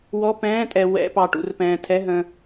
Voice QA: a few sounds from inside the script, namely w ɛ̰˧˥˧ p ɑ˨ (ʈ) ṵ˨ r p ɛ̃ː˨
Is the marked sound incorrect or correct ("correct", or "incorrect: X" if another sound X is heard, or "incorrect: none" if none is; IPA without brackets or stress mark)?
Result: correct